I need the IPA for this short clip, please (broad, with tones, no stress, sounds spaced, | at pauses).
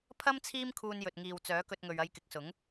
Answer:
pʰ ɐ˥ m t͡sʰ iː˥ m kʰ uː˧ n j ɵ˨ t̚ ŋ iː˨ w t͡s œː˨˥ k ɵ˧ t̚ ŋ ɵ˨ ɥ ɐ˧ j k ɪ˨˥ k̚ s ʊ˨˥ ŋ